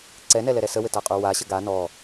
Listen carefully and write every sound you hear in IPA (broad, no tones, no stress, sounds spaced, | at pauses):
ǀ ɛ n ɛ l ɛ ɾ ɛ s ə w ɘ t a qʼ u w a ɕ ə ɡ a n ɔ